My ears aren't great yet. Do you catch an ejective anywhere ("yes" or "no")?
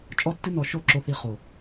yes